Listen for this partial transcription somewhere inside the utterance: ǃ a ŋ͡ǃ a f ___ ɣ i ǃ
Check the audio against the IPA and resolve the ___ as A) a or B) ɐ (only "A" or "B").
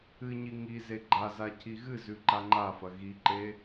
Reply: B